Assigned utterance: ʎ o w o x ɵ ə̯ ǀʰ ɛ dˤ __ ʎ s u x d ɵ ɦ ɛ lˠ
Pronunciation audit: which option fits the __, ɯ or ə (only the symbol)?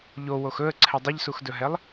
ə